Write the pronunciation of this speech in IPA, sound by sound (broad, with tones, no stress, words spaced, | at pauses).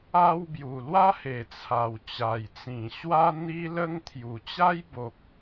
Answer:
a˦w bju˨˩lwa˦he˨˩ t͡sʰa˨˩wt͡ɕa˨˩jt͡sĩ˨˩ ɕwa˦n̪i˦lə˦ŋt̪ʰju˨˩ t͡ɕa˦jbo˨k̚